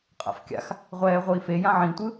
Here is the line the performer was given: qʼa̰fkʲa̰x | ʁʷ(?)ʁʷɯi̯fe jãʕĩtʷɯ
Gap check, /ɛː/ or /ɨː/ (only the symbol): ɛː